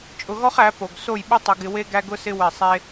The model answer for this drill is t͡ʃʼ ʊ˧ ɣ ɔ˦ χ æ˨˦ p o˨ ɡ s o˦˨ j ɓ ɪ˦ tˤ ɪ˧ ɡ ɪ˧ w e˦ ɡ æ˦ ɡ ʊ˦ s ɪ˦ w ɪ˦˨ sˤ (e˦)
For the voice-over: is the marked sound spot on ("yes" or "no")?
no